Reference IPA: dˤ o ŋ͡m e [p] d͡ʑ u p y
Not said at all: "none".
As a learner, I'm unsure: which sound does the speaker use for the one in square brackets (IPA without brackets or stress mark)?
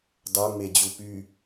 none